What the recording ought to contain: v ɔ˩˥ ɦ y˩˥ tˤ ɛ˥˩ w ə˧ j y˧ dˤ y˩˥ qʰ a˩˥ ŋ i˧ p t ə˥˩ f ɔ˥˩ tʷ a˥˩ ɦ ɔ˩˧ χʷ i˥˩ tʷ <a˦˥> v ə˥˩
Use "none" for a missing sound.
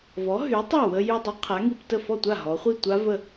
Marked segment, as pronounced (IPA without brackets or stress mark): a˦˥